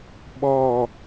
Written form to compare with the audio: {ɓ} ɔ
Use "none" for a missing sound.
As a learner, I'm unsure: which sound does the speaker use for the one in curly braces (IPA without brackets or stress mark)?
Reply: ɓ